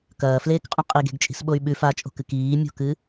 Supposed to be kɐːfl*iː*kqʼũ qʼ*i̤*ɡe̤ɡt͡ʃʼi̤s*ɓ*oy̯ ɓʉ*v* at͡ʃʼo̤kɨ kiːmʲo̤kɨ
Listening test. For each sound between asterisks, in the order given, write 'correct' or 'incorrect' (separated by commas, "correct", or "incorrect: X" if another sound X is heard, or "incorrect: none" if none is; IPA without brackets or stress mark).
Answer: incorrect: eː, incorrect: i, correct, incorrect: f